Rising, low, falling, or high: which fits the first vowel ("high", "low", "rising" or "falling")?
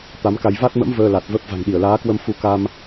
rising